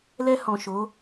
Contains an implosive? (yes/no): no